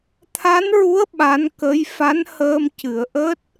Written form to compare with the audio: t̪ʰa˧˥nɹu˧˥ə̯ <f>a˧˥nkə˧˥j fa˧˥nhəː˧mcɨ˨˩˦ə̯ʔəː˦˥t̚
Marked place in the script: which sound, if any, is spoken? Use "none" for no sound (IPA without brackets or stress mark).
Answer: ɓ